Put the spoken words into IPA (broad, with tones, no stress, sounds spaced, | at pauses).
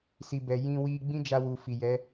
s i˨ b ɛ˨ j ĩ˧ w i˧ ɡ͡b ĩ˦ d͡ʒ a˧ w u˨ f i˨ j ɛ˨˦